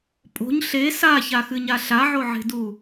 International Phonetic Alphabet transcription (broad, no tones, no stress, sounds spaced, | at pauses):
pʼ o̤ ɲ ɬ e s a ç a x ɨ ɲ a ɬ a ʕ o ʕ e̤ d u